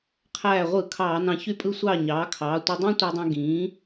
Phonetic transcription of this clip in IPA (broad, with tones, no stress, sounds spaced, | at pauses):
qʰ æː˧˩ ʁʷ ɯ˧˩˧ kʰ ɑː˧˩˧ n ɑ̃˧˩ ç y˥˩ pʼ ɯ˥˩ sʷ ɑː˥˩ ɲ ɑː˩˥ kʰ ɑː˩˥ tʷ i˧ dˤ æ̃˥ tʷ æ˧ dˤ æ̃˧ ɡ ĩː˩˥